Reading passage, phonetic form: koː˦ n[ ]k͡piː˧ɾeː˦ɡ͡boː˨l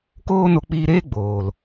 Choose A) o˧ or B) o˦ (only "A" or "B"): A